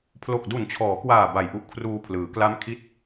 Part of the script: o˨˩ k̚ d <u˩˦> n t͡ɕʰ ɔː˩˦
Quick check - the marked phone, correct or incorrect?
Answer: incorrect